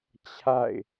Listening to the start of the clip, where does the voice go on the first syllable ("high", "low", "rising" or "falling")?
falling